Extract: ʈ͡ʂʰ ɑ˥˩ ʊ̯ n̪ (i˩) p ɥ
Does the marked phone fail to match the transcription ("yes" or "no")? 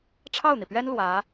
no